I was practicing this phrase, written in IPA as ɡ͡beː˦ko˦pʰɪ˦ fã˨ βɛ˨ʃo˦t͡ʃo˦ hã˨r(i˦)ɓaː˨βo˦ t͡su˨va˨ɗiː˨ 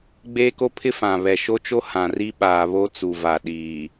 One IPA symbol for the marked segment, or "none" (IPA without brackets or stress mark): i˦